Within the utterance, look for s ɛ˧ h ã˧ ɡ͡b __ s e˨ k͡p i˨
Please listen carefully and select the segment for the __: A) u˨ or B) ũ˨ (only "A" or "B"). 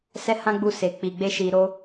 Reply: A